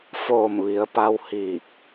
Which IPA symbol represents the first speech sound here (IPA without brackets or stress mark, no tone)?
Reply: f